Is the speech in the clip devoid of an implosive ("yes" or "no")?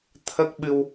no